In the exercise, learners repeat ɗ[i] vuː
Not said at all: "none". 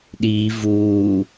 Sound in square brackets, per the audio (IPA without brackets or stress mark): iː